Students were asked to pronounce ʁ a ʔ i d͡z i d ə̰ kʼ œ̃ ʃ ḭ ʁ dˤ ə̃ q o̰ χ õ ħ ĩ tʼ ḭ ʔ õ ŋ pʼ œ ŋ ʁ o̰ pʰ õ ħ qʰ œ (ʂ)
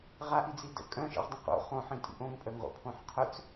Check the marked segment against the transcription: incorrect: t͡s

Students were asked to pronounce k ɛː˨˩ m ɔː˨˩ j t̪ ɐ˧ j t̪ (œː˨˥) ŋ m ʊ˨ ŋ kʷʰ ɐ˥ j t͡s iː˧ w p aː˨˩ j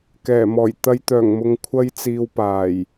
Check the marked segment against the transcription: incorrect: œː˨˩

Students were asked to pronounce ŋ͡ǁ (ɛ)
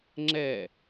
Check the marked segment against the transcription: correct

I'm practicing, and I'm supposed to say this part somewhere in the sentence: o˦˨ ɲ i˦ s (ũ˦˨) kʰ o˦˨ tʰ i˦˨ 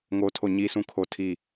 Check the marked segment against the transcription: correct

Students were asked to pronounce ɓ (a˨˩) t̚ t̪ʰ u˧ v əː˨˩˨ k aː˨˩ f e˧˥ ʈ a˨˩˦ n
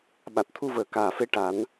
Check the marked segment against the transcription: correct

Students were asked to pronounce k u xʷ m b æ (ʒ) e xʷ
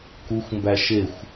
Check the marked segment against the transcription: incorrect: ʃ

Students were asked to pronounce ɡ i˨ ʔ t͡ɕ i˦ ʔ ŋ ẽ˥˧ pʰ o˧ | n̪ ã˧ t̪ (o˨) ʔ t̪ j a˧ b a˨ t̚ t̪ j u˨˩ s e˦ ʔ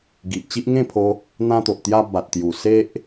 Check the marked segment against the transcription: correct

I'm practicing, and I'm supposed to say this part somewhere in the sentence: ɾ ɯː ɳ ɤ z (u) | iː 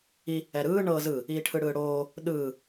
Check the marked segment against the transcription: incorrect: ɯ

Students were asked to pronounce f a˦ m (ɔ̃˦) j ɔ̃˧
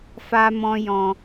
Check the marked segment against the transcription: correct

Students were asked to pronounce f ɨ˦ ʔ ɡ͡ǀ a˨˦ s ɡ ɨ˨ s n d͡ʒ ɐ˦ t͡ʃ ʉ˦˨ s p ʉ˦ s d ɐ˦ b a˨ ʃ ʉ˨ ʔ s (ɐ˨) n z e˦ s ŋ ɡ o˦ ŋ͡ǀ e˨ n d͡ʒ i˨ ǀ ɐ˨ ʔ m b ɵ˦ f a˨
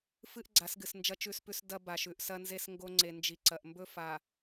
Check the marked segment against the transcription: incorrect: ɐ˦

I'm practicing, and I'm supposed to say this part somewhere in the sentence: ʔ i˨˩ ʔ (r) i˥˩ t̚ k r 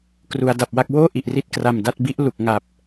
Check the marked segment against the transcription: correct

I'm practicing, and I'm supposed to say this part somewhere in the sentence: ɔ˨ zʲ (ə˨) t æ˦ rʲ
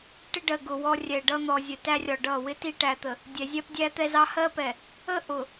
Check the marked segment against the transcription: correct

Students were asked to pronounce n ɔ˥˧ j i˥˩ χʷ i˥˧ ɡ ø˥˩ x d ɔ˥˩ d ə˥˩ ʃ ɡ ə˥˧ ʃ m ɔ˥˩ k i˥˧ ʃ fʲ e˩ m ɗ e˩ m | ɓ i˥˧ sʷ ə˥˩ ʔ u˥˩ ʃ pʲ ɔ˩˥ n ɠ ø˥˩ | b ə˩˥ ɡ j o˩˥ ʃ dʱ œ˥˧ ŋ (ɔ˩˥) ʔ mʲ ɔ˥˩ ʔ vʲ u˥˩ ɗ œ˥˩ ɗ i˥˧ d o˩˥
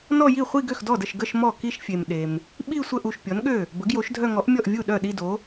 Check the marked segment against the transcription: correct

